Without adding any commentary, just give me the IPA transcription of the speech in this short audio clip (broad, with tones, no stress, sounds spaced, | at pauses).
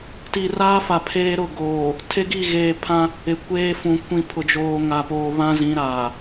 t i˨ r aː˦ f a˨ pʰ eː˦ ɾ ʊ˦˨ ɡ oː˨ | tʰ e˦ ɡ i˦˨ ɣ eː˨ pʰ ã˦ | ɪ˨ kʷ eː˦ f ũ˨ kʷ ĩ˨ pʰ ʊ˨ d͡ʒ oː˨ ŋ a˨ p oː˨ β ã˦ z ĩ˨˦ ɾ aː˨